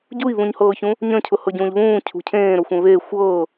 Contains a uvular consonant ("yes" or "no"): no